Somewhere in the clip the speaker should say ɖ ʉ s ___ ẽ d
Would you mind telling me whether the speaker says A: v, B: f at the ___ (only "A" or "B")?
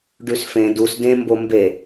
B